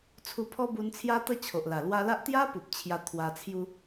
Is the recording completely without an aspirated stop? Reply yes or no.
no